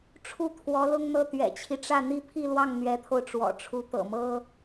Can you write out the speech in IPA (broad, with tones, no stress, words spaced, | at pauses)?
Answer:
ʈ͡ʂʰu˥˩t̪ʰwɔ˧˥lʊ˥ŋn̪ɤ˥˩ t̪ɥɛ̰˨˩t͡ɕʰi˦ʈ͡ʂä˥˩ n̪i˥pʰi˥˧lwɑ˥˩ŋ n̪ɥɛ˧˥t̪ʰo˧ʊ̯ʈ͡ʂwɔ̰˨˩ ʈ͡ʂʰu˧˥t̪ɤ̰˨˩mɤ˥